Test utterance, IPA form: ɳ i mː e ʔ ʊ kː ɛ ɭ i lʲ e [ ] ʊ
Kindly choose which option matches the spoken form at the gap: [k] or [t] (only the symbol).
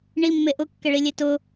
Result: t